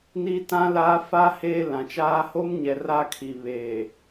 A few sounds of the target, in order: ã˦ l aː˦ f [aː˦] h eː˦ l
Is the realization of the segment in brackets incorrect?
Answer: yes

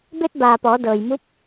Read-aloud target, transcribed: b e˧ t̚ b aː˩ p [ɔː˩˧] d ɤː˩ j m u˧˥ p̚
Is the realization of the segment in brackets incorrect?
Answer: no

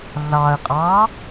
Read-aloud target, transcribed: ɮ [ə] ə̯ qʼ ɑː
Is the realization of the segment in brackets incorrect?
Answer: yes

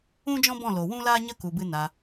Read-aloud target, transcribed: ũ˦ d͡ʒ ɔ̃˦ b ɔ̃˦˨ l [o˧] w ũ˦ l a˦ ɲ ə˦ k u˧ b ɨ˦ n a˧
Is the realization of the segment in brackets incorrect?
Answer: yes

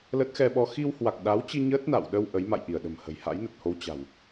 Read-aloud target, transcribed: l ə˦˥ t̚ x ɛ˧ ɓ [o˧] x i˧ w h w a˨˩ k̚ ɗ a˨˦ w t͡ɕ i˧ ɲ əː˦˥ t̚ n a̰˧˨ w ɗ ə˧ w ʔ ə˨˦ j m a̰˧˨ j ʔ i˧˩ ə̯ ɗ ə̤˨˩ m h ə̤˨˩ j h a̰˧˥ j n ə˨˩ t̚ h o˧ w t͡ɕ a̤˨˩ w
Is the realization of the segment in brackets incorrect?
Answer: yes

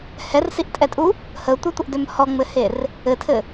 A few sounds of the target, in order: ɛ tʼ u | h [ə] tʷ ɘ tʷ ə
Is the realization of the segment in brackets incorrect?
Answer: no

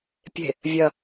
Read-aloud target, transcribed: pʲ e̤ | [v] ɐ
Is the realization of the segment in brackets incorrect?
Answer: yes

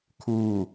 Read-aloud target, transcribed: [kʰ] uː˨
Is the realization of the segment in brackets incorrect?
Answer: no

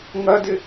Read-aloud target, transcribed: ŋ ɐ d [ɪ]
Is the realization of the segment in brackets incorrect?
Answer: no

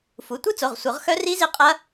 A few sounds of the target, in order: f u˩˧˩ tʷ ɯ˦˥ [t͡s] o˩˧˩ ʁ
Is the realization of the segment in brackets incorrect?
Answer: no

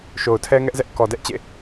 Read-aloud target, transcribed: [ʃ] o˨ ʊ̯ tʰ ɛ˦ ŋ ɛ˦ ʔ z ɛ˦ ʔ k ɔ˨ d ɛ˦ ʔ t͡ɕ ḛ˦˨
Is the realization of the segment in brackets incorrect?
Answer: no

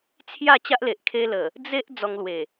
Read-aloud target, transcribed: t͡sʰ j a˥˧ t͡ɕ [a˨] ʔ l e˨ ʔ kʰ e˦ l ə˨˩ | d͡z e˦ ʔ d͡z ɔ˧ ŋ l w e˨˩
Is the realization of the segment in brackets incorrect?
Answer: yes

